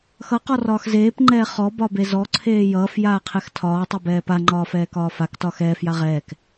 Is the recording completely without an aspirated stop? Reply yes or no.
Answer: no